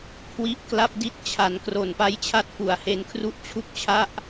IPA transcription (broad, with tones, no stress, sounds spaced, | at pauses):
kʰ w i˦˥ ʔ k l a˥˩ p̚ d i˥˩ t̚ t͡ɕʰ a˩˦ n k r o˨˩ n p a˦˥ j t͡ɕʰ a˦˥ t̚ f u˩˦ a̯ h e˧ n kʰ r u˦˥ ʔ t͡ɕʰ u˥˩ k̚ t͡ɕʰ a˥˩ ʔ